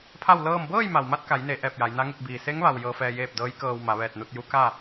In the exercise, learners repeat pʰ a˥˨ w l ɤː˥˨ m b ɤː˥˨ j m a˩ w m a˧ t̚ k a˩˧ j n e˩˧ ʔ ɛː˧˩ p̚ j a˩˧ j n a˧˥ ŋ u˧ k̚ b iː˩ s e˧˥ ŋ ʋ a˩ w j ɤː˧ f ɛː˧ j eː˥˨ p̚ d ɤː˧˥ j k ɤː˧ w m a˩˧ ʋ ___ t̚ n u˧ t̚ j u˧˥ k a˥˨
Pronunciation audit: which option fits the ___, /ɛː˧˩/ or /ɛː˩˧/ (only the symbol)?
ɛː˧˩